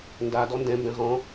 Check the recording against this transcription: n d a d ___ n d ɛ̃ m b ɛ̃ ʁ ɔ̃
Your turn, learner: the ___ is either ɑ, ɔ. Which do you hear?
ɔ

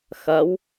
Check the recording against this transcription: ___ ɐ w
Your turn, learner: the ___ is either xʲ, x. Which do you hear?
x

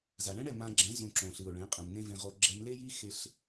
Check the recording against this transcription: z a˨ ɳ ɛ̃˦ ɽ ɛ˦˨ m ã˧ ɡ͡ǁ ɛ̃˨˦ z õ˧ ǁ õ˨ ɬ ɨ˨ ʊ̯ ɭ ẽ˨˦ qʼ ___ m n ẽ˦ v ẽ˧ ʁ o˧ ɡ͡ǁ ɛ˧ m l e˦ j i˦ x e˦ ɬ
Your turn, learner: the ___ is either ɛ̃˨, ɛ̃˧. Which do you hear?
ɛ̃˨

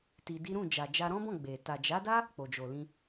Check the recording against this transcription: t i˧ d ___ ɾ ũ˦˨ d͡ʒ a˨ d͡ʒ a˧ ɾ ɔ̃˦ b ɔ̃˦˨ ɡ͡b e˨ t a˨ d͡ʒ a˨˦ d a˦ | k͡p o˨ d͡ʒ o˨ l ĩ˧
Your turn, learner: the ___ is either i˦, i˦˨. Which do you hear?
i˦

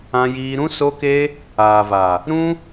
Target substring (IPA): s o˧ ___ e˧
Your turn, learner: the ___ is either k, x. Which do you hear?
k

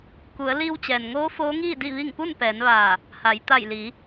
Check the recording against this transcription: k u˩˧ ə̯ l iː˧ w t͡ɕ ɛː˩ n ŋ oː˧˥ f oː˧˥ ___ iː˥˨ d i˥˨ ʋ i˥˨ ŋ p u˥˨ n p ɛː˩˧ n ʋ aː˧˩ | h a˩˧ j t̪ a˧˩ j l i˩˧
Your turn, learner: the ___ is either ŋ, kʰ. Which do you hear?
ŋ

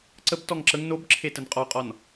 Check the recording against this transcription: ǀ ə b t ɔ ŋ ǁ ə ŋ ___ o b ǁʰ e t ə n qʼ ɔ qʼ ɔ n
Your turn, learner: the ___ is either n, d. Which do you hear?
n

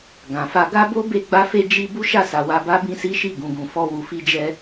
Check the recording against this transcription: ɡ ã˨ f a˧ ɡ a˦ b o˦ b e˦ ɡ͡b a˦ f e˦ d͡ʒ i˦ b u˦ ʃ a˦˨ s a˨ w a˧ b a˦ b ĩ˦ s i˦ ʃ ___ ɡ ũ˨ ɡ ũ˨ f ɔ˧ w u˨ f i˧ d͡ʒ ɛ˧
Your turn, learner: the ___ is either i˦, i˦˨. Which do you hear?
i˦˨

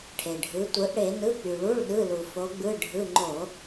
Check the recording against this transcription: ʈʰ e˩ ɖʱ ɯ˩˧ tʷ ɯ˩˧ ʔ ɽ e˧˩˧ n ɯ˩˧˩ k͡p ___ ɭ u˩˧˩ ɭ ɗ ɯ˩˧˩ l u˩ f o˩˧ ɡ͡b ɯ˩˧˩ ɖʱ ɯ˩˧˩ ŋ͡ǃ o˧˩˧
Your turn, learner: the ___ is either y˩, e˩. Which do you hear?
y˩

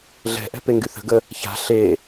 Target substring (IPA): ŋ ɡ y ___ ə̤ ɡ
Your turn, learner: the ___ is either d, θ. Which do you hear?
θ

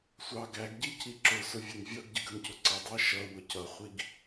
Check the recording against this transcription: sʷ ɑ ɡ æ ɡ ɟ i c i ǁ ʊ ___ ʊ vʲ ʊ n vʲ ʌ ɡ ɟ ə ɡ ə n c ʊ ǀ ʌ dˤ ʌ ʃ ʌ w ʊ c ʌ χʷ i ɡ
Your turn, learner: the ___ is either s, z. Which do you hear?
s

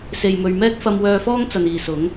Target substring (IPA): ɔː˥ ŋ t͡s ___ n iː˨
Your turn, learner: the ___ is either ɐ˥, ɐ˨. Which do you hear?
ɐ˨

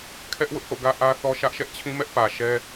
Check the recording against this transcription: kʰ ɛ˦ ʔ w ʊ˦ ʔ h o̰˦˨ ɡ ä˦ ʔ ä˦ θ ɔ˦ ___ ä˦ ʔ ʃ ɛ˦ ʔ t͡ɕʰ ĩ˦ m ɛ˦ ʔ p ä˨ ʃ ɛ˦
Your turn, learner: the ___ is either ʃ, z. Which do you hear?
ʃ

